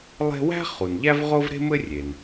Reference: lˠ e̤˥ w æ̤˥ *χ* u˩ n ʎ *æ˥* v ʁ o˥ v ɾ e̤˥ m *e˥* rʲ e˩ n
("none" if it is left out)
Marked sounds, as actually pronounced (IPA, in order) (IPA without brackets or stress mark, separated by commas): χ, æ˥, ɘ˥